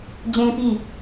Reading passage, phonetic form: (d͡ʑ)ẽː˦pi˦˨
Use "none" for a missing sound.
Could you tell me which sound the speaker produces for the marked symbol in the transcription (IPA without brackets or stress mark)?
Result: d͡ʑ